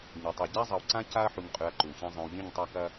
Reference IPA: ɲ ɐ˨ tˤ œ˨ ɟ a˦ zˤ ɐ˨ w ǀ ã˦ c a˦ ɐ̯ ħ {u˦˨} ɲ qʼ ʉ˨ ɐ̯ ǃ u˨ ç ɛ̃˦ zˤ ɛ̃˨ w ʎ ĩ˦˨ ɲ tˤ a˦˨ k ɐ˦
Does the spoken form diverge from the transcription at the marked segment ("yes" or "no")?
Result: yes